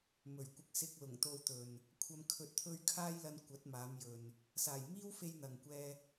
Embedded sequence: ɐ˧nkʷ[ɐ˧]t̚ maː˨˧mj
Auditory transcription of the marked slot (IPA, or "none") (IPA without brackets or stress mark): ɐ˨˥